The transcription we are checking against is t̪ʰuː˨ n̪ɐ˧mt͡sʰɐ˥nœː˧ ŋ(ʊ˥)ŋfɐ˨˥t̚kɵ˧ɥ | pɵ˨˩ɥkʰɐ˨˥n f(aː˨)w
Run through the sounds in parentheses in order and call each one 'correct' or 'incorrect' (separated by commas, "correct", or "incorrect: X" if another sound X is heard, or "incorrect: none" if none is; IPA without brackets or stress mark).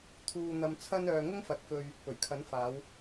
correct, incorrect: aː˨˧